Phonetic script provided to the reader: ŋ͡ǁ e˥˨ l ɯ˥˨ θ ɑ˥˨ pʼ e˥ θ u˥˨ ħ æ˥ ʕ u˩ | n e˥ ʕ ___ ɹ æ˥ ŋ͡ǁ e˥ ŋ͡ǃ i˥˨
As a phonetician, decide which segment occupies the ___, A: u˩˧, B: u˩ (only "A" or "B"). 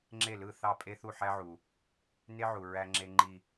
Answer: B